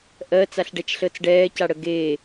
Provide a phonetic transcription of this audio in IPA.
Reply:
ʔɜːt͡saɬɖɛt͡ʃɬəːt͡s ɖɛːcaɽə ɡeː

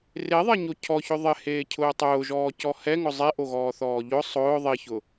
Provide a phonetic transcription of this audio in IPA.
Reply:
reðˤeɲo cʰɔçʊ ðˤɪheːcʰʊː tˤʊːʒɔːcɔ hɛŋʊ zˤeʔoɣɔːθɔː ʎʊ sˤʊː ðˤiçʊ

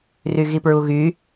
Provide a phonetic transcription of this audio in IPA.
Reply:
ryɣipɹuɣy

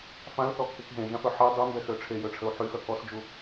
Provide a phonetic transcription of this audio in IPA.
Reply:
fãlθɔkːek ɦẽʒãfœ ħe dˤymbɛxø ʈ͡ʂʰejøʈ͡ʂʰəu̯ ħyxœ kɔsd͡ʒu

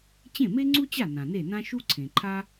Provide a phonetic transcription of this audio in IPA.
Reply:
t͡ɕẽ˥˩me˥ŋ͡ǀu˥t͡ɕa˥˩ nã˩ne˥˩nã˥ ʃu˥ ǀʰẽ˩ǃʰa˥

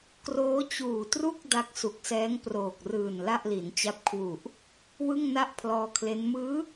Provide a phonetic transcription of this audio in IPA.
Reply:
kroː˦˥t͡ɕuː˨˩tru˥˩k̚ da˦˥k̚su˨˩k̚sɛː˦˥ŋ proː˨˩k̚rɯː˨˩n la˥˩ʔli˩˦nt͡ɕa˦˥p̚ kʰwu˨˩ʔ | wɯ˥˩ŋna˥˩ʔ pʰlɔː˧kʰle˦˥n mɯː˦˥

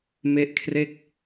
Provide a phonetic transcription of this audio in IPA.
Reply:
me˦˥ʔkʰre˥˩k̚

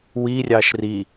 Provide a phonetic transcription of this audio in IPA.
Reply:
wi rʲɑʃri

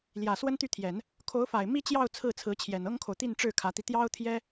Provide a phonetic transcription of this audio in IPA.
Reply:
ljä˨˩ swə˥nt̪y˥˩t̪ʰjɛ˨˩˦n | kʰo˧˥ʊ̯fa˨˩ɪ̯ mi˥t͡ɕjɑ˥˧ʊ̯ t͡sʰɹ̩˥˩t͡sʰɹ̩˧˥t͡ɕʰjɛ˨˩n ɤ˥ŋkʰo˨ʊ̯t̪i˥˧nʈ͡ʂɻ̩˥˩ kʰä˧˥t̪i˧ t̪jɑ˥ʊ̯ t̪ʰjɛ˥

